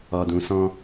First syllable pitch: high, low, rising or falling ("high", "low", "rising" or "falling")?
low